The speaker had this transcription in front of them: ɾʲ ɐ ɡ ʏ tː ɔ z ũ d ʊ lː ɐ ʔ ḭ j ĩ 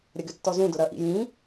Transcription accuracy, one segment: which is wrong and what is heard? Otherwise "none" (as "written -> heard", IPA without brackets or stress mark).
lː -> ɾ